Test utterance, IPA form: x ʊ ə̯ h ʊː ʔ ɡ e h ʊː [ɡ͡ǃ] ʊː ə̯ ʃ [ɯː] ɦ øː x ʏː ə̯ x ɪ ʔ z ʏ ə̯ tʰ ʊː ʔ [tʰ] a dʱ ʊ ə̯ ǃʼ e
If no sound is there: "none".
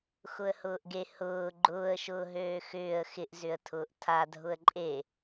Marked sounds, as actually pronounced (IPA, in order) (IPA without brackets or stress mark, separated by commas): ɡ͡ǃ, ʊː, tʰ